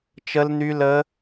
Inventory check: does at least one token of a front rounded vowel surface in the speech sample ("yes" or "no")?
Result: yes